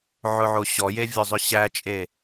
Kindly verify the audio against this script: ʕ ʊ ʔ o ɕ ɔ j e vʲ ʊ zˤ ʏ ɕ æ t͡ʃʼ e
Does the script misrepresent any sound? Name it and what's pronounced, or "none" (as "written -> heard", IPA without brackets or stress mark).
ʔ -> ʕ